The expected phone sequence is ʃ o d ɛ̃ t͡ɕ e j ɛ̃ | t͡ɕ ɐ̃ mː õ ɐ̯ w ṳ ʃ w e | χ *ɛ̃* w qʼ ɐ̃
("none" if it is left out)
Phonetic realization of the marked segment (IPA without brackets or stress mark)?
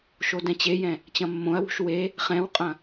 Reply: ɛ̃